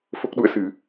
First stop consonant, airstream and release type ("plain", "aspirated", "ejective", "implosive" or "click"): plain